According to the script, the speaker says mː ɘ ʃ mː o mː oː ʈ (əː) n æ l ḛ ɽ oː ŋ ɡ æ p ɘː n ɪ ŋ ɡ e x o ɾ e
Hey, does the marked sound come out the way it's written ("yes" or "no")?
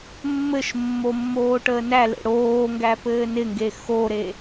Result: yes